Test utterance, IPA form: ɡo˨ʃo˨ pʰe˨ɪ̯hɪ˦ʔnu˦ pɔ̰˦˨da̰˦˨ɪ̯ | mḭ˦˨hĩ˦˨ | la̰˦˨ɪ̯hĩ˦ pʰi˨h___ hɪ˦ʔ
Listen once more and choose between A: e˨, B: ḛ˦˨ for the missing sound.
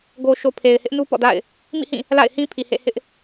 B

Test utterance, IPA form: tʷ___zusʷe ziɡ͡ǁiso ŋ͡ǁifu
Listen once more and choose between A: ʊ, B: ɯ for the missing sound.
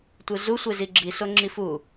B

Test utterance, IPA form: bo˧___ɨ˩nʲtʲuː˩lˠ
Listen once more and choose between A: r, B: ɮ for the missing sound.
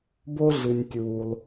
B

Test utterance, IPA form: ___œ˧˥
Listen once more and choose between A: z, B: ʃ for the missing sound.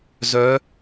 A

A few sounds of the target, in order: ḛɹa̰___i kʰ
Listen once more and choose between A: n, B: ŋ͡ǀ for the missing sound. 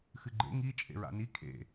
A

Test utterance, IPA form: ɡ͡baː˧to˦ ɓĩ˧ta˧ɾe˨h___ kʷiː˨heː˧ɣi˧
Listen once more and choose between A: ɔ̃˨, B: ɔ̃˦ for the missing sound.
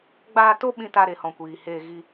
A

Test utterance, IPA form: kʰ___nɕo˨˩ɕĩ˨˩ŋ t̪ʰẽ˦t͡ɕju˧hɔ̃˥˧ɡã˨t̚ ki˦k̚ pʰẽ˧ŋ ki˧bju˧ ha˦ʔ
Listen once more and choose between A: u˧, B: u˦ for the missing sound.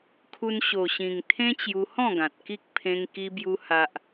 A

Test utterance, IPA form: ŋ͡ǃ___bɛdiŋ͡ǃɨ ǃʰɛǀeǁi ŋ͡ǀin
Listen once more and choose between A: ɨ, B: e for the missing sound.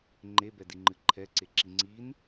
B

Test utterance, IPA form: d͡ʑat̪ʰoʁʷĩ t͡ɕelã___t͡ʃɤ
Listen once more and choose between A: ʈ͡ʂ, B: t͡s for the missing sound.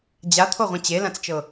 B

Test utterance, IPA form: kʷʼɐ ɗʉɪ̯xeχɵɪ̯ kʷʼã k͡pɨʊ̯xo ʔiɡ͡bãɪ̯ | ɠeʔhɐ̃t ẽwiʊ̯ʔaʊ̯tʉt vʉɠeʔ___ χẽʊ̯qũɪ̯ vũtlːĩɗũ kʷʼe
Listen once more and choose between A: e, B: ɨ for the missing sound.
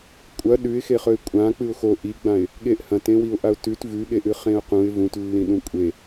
B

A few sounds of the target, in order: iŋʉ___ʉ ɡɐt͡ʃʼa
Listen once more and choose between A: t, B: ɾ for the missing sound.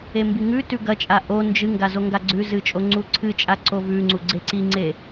A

